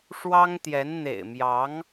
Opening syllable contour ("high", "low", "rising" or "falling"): high